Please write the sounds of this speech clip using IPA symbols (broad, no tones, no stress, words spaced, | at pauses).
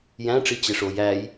jæ̃ʈ͡ʂi t͡ɕeʂoj æj